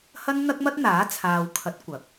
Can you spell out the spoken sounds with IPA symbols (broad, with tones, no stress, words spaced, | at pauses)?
hɐ˥nn̪ɐ˥k̚mɐ˥t̚n̪aː˨˥ t͡sʰaː˨wkʰɐ˨˥t̚ kʷɐ˨˥k̚